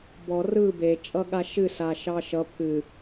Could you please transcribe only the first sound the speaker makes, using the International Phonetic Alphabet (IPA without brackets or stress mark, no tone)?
b